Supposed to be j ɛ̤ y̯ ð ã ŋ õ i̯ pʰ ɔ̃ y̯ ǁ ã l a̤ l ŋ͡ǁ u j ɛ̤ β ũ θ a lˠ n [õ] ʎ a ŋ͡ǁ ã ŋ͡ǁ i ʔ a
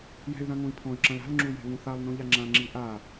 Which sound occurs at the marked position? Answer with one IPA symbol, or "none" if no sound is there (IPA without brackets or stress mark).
õ